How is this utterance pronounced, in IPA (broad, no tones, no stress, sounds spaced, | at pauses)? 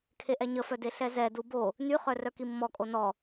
kʰ e ʔ ɛ ɲ ə f œ d e ɬ ɛ z ɛ d u b o | n y χ œ r œ k i mː ɔ kʼ o n ɔ